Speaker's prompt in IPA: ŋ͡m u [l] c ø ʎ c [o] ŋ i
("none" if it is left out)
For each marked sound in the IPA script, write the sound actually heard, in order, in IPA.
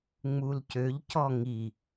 l, ɔ

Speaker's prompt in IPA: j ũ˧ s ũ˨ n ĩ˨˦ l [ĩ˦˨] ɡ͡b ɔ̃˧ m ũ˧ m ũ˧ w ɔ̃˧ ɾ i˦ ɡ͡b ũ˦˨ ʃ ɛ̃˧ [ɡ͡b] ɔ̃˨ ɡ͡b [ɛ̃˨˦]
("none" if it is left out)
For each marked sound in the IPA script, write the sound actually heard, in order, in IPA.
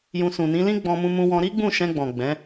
ĩ˦, ɡ͡b, ɛ̃˨˦

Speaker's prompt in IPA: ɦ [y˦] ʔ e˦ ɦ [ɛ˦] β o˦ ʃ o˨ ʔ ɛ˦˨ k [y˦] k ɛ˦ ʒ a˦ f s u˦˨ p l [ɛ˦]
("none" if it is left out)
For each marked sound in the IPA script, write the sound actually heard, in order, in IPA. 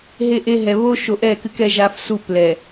e˦, ɛ˨, ɨ˦, ɛ˨

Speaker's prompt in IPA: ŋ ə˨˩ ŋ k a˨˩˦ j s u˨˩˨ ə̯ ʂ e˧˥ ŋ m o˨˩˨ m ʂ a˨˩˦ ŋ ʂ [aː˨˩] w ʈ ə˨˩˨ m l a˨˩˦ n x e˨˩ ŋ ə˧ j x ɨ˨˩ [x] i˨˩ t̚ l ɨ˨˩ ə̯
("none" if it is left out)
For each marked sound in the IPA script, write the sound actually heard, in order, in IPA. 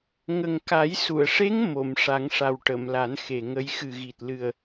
a˨˩, ɣ

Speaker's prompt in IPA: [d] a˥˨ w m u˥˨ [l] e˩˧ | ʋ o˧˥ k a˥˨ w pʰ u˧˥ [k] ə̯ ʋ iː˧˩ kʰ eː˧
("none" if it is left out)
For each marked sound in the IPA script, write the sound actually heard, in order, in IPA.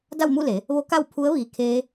d, l, none

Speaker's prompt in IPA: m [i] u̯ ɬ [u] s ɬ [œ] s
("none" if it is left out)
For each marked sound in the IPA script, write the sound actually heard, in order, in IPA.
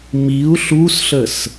i, u, ə

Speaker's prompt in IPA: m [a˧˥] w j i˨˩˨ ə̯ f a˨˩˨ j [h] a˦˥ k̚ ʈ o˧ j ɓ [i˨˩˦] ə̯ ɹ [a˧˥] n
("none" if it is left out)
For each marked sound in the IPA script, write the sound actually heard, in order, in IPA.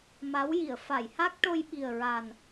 a˧˥, h, i˨˩, a˨˩

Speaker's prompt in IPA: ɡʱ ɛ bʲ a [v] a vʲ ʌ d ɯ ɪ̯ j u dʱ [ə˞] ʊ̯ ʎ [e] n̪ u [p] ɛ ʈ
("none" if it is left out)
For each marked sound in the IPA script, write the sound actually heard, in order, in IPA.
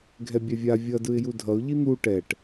vʲ, ʌ, i, ʈ

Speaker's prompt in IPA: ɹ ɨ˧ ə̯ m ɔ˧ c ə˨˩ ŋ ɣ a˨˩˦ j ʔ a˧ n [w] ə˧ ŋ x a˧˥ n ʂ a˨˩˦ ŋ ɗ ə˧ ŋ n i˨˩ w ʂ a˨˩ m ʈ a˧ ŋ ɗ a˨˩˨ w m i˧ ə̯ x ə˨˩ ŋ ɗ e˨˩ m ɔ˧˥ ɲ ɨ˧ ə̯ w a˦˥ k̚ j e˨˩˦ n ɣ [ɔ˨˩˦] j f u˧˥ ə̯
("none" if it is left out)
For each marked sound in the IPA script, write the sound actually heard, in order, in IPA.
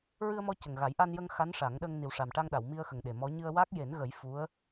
j, ə˨˩˦

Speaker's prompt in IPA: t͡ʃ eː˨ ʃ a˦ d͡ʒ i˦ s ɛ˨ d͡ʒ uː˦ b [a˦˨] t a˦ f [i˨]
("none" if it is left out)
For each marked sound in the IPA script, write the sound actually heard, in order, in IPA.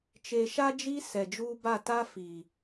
a˦˨, i˨

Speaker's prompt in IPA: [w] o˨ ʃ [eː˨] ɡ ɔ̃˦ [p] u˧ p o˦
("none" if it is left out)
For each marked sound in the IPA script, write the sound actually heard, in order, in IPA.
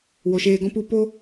w, eː˧, p

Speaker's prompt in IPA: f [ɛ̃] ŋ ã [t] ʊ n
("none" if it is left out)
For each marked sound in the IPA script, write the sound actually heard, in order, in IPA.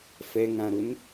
ɛ, ɾ

